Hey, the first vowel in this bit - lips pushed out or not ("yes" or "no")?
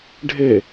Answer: no